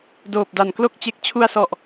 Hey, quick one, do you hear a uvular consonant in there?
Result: no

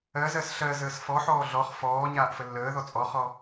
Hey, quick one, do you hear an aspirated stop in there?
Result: no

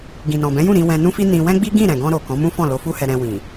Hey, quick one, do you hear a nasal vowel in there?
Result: yes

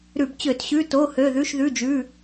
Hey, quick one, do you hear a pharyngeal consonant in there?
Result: no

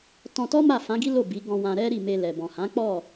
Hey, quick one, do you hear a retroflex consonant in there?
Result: no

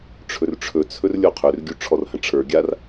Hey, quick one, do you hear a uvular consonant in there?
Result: yes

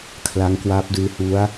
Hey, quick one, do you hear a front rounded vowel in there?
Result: no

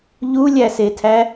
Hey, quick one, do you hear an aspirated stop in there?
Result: yes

